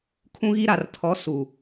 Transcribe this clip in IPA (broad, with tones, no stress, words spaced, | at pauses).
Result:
kʰũ˦ɣi˦ ɾa˨rtʰɔ˨˦ su˨